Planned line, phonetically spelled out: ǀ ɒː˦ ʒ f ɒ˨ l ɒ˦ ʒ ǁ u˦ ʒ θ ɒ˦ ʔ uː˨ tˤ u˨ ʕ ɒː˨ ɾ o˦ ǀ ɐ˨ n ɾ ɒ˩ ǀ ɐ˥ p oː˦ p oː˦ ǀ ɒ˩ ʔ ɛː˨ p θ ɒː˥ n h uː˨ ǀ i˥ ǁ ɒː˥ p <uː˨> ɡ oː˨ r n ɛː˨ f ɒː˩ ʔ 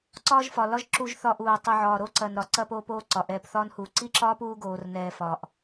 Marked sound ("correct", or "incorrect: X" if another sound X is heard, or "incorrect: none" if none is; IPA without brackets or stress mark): incorrect: uː˦